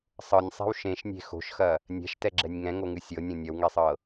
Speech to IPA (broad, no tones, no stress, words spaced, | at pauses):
sˤɤnʲsˤe̤w ʃẽʃnʲe̤ xo̤ʃxɐ | nʲɛ̤ʃtɛɡ͡ǁɛnʲ ŋɛ̃ŋoŋɨ sʲɤnʲõ nʲɐwŋɛsˤɤ